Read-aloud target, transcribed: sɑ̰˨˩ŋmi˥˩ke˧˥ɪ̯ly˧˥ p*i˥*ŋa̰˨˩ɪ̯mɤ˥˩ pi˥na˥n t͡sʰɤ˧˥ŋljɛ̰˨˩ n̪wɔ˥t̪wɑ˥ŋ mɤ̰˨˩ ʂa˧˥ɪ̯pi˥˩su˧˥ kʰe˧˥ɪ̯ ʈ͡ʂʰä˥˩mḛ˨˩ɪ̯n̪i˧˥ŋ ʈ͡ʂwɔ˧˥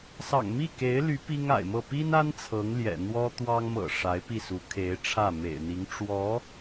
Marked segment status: correct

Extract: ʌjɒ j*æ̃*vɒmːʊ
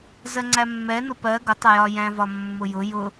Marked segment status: correct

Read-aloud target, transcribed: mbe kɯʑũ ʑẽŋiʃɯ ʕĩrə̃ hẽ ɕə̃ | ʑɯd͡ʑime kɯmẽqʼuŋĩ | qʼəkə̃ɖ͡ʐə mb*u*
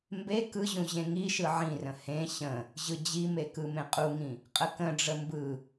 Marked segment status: incorrect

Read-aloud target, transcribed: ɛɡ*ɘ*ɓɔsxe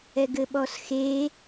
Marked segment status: correct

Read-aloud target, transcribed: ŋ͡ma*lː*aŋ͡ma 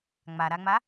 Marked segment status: incorrect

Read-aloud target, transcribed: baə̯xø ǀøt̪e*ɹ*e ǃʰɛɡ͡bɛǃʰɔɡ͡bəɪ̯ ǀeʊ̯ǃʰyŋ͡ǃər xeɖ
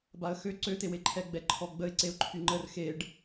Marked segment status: incorrect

